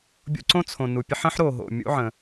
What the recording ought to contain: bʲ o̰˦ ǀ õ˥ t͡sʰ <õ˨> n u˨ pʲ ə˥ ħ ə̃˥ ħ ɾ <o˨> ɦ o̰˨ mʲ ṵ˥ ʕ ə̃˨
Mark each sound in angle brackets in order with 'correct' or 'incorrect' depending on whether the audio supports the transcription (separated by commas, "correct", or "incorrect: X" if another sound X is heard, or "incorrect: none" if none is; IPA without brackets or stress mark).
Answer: correct, correct